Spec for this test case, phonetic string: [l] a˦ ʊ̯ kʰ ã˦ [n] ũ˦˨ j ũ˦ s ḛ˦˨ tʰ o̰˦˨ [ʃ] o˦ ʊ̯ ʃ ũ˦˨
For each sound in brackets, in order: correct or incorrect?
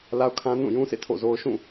correct, correct, incorrect: z

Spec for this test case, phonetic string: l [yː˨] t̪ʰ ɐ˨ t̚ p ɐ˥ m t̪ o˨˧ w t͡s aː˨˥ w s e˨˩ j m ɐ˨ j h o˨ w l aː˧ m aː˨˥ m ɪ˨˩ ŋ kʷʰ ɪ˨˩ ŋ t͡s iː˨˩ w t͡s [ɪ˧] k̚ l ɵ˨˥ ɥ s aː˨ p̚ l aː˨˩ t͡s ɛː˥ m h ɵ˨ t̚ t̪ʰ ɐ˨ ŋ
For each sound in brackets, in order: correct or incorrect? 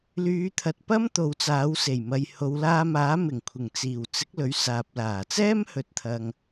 incorrect: yː˨˧, incorrect: ɪ˨˥

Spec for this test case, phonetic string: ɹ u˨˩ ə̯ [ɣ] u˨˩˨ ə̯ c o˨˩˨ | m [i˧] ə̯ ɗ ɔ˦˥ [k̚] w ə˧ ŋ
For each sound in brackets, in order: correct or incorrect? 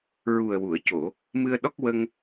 incorrect: w, incorrect: ɨ˧, correct

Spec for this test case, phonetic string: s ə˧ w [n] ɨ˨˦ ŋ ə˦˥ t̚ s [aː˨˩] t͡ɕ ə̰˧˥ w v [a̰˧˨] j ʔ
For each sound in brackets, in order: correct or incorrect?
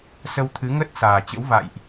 incorrect: t̪ʰ, correct, correct

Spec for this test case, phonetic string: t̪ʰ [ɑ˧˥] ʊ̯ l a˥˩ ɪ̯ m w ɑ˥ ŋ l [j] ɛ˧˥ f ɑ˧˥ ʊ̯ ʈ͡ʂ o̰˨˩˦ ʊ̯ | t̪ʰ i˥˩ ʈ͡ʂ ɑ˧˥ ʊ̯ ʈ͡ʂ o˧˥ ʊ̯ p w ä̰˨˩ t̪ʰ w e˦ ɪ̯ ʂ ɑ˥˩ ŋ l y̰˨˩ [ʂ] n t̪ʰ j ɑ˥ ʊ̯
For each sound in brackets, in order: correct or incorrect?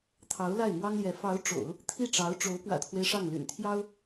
correct, correct, incorrect: none

